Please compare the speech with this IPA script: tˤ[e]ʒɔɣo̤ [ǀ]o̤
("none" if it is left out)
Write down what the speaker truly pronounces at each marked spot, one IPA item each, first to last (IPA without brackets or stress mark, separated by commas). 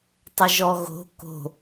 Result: ɘ, k